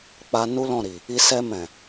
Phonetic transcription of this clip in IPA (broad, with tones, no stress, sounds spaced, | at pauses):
k͡p a˧ n u˦ l ɔ̃˦˨ ɾ i˨ | i˧ s ɛ˧ m ɛ̃˨